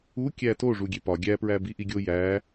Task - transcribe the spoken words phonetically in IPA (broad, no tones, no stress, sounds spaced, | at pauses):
u kʲ æ t o ʐ u ɡʲ e p ɒ ɡʲ æ p ɹ æ b i ʔ i ɡʲ o j æ